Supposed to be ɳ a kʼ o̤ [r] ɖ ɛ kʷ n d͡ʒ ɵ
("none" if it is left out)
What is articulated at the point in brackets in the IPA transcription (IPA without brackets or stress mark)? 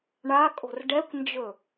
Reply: r